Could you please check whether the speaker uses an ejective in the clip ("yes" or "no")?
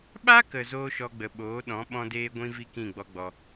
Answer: no